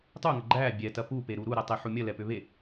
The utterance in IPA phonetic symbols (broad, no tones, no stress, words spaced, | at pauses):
tˤuŋɐ ɡ͡ǃæ bʲɛtɐ pupeɾu ɾuɾætˤeħu mʲɐlɛpʏ βe